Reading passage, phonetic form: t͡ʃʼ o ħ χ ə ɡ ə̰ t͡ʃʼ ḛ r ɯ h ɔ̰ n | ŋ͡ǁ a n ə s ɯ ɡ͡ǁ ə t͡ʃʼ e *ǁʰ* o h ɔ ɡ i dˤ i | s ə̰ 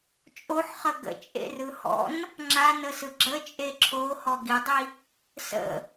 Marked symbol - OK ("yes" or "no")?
yes